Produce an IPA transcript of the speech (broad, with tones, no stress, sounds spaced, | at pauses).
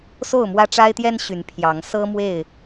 s o˥˨ ʊ̯ m w ä˦ ʈ͡ʂ a˦ ɪ̯ t̪ j ɛ˦ n ɕ y˨˦ n pʰ j ɑ˨˦ ŋ s ɤ˦ m w e˥˨ ɪ̯